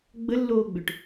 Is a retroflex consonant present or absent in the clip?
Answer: present